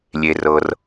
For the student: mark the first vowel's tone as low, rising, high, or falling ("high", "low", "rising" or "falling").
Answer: low